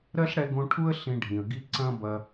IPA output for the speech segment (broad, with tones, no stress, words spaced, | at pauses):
ɾɜ˦ɬɽɛ˧ɡõ˧ ʈʰu˦ə̯ ɬĩ˧ɖʱĩ˨ə̯ ɡi˧ ǀɐ̃˦ bɐ˧